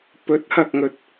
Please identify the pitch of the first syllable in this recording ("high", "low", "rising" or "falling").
rising